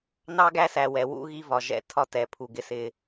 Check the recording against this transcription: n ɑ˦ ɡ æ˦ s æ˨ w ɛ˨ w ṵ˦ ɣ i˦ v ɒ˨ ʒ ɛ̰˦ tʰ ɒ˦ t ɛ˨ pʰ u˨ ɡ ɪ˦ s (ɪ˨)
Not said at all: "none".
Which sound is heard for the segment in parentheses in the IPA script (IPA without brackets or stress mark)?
ɪ˦